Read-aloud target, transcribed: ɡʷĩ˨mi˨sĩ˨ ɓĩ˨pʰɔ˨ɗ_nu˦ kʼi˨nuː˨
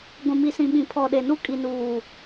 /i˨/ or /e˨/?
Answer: e˨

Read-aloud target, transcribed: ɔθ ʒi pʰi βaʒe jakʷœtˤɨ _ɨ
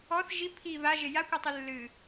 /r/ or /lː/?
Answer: lː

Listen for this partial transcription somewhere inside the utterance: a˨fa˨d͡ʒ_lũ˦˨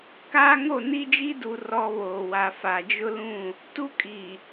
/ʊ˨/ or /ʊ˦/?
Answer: ʊ˦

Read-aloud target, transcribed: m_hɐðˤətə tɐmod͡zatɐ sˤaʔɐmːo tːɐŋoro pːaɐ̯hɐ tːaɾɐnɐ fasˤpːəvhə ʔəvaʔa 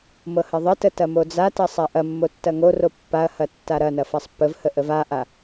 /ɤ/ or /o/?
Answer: ɤ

